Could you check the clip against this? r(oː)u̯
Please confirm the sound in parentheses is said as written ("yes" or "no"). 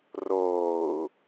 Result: yes